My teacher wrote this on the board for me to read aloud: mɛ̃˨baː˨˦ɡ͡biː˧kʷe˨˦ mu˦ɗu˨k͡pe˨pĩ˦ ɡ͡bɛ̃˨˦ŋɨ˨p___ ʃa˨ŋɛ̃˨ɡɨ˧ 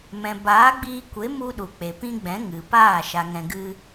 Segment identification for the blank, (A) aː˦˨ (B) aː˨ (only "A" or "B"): A